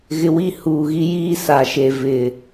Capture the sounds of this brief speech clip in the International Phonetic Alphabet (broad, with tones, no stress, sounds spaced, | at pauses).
ɣ ɪ˨ w i˦˨ h uː˨ ɣ i˦ j iː˦ s a˨ ʃ e˨ v ɪ˨